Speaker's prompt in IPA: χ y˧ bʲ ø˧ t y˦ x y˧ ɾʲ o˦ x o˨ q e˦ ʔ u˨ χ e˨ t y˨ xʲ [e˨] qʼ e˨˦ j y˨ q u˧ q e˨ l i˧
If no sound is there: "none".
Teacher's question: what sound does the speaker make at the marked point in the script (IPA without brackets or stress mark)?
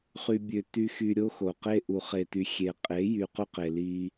e˨